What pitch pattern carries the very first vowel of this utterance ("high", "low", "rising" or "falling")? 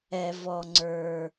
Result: low